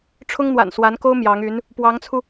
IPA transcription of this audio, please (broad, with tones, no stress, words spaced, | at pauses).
ʈ͡ʂʰʊ˥ŋn̪wa̰˨˩nswa˧˥nko˥ʊ̯ mjɑ˧˥ŋy˧˥n | pwɑ˧˥ŋt͡sʰu˧